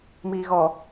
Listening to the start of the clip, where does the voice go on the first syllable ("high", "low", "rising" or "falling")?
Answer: low